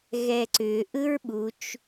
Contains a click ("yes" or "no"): yes